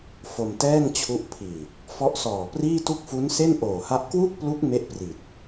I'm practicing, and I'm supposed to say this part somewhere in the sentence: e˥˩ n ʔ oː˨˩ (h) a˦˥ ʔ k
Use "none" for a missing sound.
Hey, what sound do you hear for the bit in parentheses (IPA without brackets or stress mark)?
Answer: h